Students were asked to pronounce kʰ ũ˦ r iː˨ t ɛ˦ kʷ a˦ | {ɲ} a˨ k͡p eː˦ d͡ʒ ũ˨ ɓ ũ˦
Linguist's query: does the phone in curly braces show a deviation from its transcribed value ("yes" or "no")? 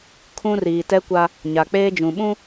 no